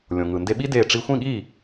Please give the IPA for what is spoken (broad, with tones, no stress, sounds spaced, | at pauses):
lʲ õ˩ ŋ ɯ˩ n d e˧ ɓ i˥ d e˥˩ ʈ͡ʂ i˧ xʷ ĩ˥˩ ɠ i˥˩